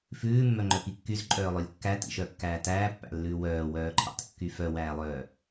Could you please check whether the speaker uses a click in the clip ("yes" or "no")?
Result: yes